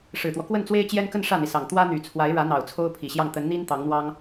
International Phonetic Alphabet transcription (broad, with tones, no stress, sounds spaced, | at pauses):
ʂ ɻ̩˨˩ t̪ w ɔ˦ k w ə˥˩ n t͡s w e˥ ɪ̯ t͡ɕ j ɛ˥ n k ə˥˧ n ʂ ä˥˩ n̪ i˩ s ɑ˨˩ ŋ t̪ w ä˥ n̪ y˨˩ t͡sʰ w a˧˥ ɪ̯ ɻ ä˧˥ n̪ ɑ˨˩ ʊ̯ t͡sʰ o˥ ʊ̯ pʰ i˨˩ ɕ j ɑ˥˩ ŋ t̪ ə˧˥ n n̪ i˥ n t̪ ɑ˧˥ ŋ n̪ w ɑ˥ ŋ